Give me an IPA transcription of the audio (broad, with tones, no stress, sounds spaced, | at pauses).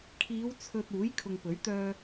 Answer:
kʰ iː˨˧ w t͡sʰ ɵ˨ t̚ uː˨˥ j kʰ ʊ˨ ŋ p ɵ˨˥ ɥ t̪ œː˧